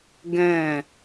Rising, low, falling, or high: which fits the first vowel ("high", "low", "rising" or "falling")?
falling